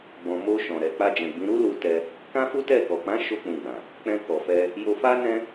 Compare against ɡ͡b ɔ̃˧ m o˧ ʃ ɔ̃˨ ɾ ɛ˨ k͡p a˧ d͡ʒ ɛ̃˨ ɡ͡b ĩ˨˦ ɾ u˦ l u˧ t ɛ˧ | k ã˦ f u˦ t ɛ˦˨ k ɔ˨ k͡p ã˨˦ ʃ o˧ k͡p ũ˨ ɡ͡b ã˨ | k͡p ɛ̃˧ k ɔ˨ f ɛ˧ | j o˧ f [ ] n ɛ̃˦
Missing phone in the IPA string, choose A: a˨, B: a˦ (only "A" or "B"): B